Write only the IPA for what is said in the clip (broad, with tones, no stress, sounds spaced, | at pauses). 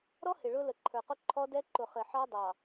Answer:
ɾ ɔ˦ h ɪ˨ ɭ ʊ˦ l ə˨ ǃʰ ə˞˨ q ʊ˦ ǃʰ ɔ˦ d ɛ˦ ǃ ʊ˨ χ ɪ˨ ħ ɑ˦ dˤ ɑ˨